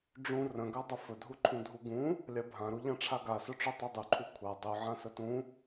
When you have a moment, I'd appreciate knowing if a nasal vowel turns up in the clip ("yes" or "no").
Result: yes